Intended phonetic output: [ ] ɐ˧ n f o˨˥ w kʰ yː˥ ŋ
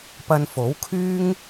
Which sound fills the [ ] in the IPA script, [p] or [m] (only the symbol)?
p